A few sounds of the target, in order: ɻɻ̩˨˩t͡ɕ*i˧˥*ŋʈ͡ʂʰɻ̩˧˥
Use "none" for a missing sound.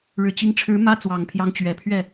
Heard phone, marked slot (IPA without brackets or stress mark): i˧˥